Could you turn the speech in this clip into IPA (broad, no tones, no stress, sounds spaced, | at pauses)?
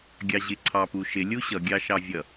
ɡʲ ɑ ʑ ɪ ǀʰ ɑ p u ʃ ɪ lʲ u ɕ ʌ ɡʲ ɑ ʃ ɑ vʲ ʌ